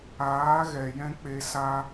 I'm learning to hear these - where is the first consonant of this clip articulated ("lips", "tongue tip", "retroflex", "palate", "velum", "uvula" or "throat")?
velum